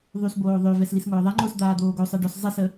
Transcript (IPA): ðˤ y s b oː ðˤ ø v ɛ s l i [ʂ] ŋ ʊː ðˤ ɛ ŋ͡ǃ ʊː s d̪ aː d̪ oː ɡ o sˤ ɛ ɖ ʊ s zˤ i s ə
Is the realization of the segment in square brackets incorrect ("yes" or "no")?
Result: yes